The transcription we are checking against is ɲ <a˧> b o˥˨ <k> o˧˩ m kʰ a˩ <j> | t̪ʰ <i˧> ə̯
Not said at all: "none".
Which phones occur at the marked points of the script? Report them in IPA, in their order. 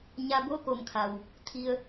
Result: a˧, k, w, i˧

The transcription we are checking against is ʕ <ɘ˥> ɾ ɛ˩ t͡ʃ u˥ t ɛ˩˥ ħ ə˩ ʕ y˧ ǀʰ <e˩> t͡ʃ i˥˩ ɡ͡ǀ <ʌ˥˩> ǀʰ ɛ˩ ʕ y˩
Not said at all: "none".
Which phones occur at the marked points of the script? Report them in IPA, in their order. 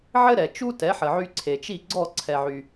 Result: ɘ˥, e˩, ɔ˥˩

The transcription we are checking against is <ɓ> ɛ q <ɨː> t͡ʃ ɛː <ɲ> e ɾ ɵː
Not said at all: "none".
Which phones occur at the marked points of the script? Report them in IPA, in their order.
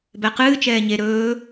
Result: b, ɨː, ɲ

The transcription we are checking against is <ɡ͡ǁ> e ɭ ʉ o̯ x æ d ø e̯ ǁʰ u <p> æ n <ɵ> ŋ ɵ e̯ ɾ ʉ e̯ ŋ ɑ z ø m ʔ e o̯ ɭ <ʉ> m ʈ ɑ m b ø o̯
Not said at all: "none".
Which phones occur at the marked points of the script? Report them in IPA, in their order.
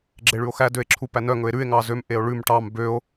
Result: ɡ͡ǁ, p, œ, ʉ

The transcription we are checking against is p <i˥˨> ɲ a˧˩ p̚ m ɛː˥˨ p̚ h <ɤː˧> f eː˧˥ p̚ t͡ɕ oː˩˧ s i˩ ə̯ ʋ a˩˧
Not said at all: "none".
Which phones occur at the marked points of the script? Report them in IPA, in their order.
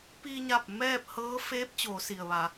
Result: i˧, ɤː˧˥

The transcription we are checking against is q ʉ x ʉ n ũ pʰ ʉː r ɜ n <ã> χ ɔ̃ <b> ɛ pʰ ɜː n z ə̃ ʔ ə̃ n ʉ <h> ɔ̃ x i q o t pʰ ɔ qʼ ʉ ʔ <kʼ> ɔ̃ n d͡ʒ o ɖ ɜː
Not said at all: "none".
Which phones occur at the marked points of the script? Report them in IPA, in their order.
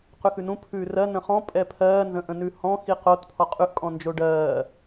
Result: ə̃, pʼ, h, kʼ

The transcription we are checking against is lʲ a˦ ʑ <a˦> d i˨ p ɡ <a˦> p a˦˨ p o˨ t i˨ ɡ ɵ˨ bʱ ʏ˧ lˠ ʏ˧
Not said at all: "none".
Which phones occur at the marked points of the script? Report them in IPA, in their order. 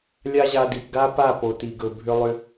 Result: a˧, a˦

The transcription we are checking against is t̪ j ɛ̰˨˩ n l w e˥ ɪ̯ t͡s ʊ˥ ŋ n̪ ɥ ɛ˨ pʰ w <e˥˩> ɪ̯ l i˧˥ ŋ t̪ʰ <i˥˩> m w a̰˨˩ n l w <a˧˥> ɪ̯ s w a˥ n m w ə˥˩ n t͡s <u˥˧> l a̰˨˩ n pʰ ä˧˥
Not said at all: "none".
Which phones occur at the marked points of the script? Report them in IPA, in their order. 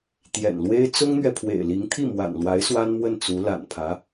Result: ḛ˨˩, i˥˩, a˧˥, u˧˥

